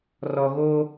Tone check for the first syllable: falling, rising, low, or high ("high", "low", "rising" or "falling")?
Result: low